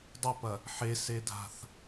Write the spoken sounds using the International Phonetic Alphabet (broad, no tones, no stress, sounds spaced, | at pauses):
dˤ ʏ p ɐ | ħ e s e dʱ a̤ θ